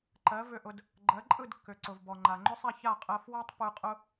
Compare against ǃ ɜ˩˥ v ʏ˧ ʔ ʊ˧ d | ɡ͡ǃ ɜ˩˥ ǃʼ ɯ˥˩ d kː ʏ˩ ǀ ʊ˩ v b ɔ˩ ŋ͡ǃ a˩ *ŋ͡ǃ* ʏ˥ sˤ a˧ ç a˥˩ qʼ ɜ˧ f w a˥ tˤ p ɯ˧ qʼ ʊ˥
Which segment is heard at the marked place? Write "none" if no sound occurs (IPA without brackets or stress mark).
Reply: ŋ͡ǃ